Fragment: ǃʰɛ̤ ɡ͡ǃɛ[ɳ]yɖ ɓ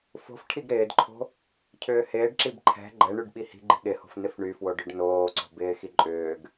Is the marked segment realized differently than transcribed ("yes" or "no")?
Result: no